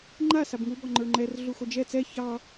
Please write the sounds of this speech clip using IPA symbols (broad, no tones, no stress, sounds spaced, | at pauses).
ŋ͡ǃ a s a b ŋ u b ɔ ŋ͡ǃ ə˞ ŋ͡ǃ ɛ r ɮ u x o d͡ʒ ɛ t͡s ɛ ç ɑ